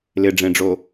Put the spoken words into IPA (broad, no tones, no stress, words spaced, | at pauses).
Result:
lɪɖ͡ʐẽɖ͡ʐo